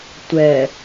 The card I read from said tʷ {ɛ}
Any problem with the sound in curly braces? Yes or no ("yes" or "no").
no